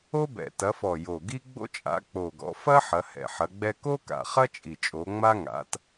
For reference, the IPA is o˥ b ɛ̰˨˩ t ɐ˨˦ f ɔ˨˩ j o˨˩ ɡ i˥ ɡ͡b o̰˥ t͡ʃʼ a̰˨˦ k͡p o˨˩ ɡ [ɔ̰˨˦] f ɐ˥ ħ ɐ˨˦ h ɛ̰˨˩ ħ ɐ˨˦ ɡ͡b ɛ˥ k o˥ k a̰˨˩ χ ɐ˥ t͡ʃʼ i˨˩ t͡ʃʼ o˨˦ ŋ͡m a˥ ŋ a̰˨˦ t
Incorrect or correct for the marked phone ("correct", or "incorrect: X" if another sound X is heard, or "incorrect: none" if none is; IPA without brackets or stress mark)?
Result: correct